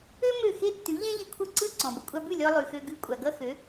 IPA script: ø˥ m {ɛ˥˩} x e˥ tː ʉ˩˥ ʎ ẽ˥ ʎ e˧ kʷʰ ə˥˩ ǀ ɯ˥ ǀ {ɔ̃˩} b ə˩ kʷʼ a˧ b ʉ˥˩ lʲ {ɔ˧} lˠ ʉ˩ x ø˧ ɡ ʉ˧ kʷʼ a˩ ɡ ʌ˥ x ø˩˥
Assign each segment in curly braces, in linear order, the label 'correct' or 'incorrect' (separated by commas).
incorrect, correct, correct